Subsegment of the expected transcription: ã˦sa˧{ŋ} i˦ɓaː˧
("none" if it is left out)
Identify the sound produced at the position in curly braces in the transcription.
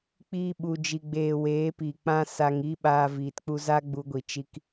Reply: ŋ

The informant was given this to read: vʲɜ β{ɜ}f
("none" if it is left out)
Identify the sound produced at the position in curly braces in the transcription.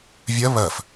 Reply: ɜ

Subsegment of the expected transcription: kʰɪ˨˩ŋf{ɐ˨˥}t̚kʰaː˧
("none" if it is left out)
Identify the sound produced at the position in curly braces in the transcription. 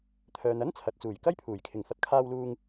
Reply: ɐ˨˥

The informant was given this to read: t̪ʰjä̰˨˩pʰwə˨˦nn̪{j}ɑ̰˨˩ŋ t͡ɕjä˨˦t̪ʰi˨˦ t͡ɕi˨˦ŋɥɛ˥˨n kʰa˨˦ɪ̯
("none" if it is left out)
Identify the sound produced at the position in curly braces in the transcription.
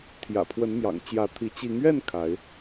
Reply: j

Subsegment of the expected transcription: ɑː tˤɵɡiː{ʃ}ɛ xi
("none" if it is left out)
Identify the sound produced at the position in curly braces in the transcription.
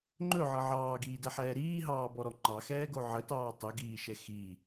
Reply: ʃ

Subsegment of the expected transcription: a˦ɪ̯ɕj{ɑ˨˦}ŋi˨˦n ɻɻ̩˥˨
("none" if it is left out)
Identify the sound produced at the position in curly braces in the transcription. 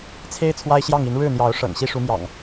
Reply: ɑ˥˨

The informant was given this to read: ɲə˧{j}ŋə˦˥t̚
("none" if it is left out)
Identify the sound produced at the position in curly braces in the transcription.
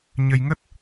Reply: j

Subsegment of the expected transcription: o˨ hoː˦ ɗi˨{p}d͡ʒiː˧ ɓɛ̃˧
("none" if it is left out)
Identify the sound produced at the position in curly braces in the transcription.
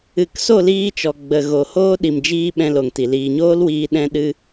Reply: m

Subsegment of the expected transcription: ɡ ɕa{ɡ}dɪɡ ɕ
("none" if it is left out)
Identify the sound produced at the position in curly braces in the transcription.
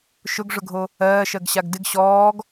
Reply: ɡ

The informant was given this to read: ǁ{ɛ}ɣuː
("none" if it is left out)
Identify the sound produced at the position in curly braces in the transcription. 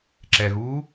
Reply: ɛ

